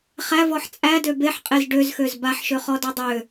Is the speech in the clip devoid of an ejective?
no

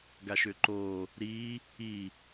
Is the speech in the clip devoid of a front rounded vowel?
no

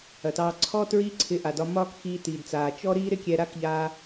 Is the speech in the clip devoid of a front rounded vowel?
yes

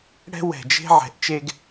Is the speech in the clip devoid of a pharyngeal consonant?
no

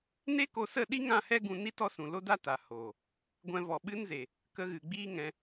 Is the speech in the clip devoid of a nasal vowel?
no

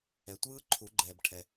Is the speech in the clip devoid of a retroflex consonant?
no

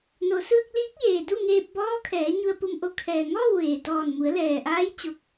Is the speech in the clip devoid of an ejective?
yes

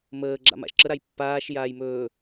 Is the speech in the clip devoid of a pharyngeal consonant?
yes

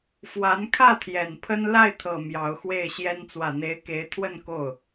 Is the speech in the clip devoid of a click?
yes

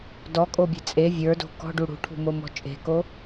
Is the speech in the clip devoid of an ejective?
no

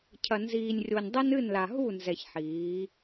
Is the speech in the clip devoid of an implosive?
yes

